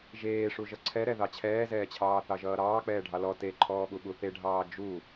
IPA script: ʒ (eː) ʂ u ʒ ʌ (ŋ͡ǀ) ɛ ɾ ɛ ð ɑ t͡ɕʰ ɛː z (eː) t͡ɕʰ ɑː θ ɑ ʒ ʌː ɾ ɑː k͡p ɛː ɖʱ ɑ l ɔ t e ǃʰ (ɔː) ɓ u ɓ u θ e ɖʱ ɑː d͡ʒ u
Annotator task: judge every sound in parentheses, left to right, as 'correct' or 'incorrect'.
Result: correct, incorrect: ǀʰ, incorrect: ɛː, correct

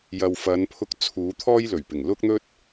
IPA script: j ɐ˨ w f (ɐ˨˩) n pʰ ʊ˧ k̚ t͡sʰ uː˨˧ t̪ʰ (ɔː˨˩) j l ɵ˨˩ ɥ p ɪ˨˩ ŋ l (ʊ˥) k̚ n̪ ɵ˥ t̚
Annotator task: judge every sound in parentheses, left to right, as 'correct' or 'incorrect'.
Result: incorrect: ɐ˨˧, incorrect: ɔː˥, correct

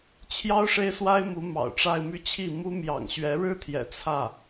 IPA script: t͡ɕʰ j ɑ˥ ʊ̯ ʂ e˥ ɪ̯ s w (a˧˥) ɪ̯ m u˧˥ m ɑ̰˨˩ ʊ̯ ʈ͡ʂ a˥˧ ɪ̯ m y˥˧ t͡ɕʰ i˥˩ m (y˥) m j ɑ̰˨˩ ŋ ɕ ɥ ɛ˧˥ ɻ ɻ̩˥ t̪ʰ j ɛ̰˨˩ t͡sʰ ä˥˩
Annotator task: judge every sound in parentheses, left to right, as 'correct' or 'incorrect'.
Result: incorrect: a˥, incorrect: u˥

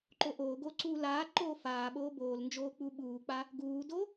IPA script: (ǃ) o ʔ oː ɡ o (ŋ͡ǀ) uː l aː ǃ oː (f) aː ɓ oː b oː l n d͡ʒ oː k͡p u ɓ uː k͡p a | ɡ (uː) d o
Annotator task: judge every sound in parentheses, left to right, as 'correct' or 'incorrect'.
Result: correct, incorrect: ǀ, correct, correct

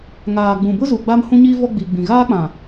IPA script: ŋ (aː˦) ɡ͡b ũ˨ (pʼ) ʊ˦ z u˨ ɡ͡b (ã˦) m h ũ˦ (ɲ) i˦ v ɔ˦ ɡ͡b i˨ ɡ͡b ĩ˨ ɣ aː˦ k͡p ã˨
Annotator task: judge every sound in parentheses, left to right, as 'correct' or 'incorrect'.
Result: incorrect: aː˨, incorrect: b, incorrect: a˦, correct

